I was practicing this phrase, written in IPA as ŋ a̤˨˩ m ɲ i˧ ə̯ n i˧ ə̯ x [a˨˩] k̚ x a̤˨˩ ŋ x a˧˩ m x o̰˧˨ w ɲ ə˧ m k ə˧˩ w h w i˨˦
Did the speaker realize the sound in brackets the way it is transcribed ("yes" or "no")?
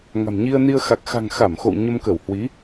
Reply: yes